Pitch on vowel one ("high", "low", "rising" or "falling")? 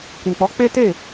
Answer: low